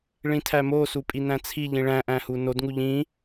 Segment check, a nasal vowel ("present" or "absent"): present